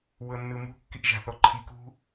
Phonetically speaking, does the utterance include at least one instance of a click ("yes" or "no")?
yes